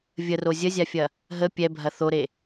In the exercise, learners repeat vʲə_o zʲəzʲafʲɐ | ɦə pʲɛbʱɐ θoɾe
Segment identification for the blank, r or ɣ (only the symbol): r